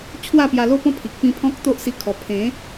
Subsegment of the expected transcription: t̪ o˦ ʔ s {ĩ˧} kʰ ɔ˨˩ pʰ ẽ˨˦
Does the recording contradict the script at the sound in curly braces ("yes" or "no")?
yes